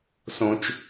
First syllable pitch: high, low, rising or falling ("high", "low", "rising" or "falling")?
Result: low